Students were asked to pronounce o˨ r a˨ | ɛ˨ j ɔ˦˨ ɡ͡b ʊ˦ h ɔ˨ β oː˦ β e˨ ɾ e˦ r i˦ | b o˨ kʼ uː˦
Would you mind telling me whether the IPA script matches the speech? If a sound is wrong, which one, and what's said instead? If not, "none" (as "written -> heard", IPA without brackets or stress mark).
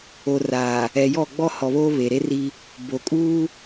ʊ˦ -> ɔ˦